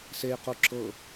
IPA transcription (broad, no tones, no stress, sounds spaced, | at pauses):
s e j q u ǁ ɤ